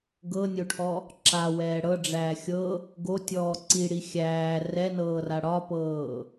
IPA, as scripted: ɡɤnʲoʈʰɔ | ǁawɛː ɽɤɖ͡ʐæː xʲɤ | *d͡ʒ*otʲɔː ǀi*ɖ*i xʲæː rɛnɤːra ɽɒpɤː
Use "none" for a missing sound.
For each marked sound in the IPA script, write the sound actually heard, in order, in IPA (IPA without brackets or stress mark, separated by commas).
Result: ɡ, ɽ